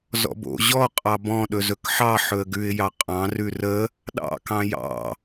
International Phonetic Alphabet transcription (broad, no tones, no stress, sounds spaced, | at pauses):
z ɔ̰ b o̰ ʑ ɔ qʼ ɑ b ɔ̃ ɗ ɵ z ɵ k ħ ɑ ħ ɵ ə̯ ɡ ʉ ɪ̯ j ɑ qʼ ɑ̃ r ʉ r ə | ɗ ɑ̰ k ɑ̃ j ɑ̰